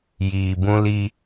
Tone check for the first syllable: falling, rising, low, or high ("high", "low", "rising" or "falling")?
low